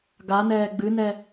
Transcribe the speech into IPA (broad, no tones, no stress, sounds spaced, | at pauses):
ɡ a n ɛː ɡ͡b ɨ n ɛ